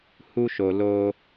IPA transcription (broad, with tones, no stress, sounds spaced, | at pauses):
h u˦ ʃ o˧ l o˧